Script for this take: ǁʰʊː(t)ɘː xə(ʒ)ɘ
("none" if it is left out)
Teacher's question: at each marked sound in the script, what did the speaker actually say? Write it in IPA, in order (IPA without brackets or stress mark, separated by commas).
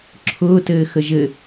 t, ʒ